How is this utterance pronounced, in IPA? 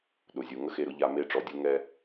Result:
ɗʊ˩zʲu˩ ŋə˥xe˧ɾʊ˩˥ʎa˧ me˧ʈ͡ʂɔ˩dʲu˧ ŋɛ˧

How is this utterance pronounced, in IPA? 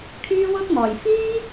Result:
kʰyː˥wʊ˥k̚mɔː˨j fiː˥

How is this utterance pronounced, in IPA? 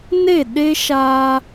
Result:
ne˦˨ɗe˦ ʃaː˦

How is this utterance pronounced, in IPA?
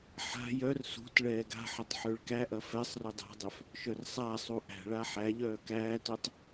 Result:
ħa̤ jœr sṳt ɭɛːɡa̤ħɐtˤ ħøɭkæʔɐ fɛsˤrø dˤa̤dˤœf | ʃœrsˤasˤu ʔæ̤ɭa ħæʎœː kæːtœtˤ

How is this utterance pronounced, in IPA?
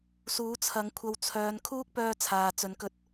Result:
suː˨˥t͡sʰɐ˨˥ŋkʷʰɐ˧w t͡sʰœː˨˧n kʰuː˥k̚pœː˧ t͡sʰaː˨t͡sɵ˨˥nkɵ˧t̚

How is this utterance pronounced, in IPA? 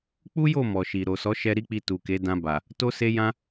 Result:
k͡pu˦jo˦˨ mɔ˨ʃi˨ ɾo˨sɔ˨˦ʃɛ˧ ɾi˦k͡pi˧tu˨ke˨˦ dã˧ba˨ | to˦se˦jã˦

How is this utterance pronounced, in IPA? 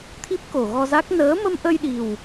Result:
t̪ʰi˦˥p̚ko˨˩ɣɔ˧za˦˥k̚ nəː˨˦mə˧mʔə˧jɗi˨˩w

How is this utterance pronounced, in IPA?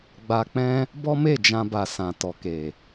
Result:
ɡ͡ba˧k͡pɛ̃˦ | bɔ˦me˦˨d͡ʒã˧ba˨ sã˨tɔ˨ke˨

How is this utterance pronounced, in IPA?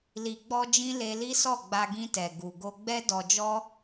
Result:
li˨ɡ͡bɔ˧d͡ʒĩ˧ le˧li˦sɔ˦˨ɡ͡ba˧ ɡĩ˧tɛ˨ ɡu˨ɡo˧ɡ͡bɛ˦ dɔ˧d͡ʒɔ˦

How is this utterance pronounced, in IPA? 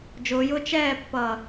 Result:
d͡ʒʊːjʊː t͡ʃɛːpːʌː

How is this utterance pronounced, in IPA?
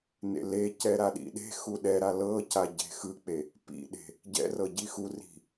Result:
nḛlecɛ ɾaɗḭɗe̤xu ɗɛɾa lɤca ɟe̤xɯk͡pe | pḭɗe̤ | ɟɛ̰rɤ ɟixuri̤

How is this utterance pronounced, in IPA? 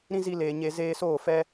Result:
ɾĩ˦zi˧leː˨ ɲe˧ zeː˧soː˦˨ fɛ˧

